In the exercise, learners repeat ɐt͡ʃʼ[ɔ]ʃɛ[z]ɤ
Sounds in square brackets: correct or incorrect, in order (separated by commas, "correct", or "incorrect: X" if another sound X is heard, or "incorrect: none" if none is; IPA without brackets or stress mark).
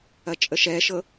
incorrect: ə, incorrect: ʃ